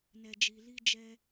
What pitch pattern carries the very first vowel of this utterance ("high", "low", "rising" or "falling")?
low